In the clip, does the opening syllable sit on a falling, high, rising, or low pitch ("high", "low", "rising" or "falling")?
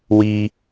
high